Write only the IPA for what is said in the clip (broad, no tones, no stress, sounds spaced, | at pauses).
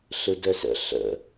ɬ ɯ d ə s ə̰ ɬ ə̰